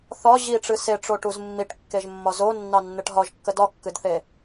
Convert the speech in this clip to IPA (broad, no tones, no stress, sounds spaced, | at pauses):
θ ɒ ʑ i ʈ͡ʂ ɨ s e ʈ͡ʂ o ʈ u z mː i ʈ kː e ʒ mː ɒ z o nː ɑ nː ɨ ʈ ɦ ɒ ʒ kː ə d ɒ kː ɨ d θ e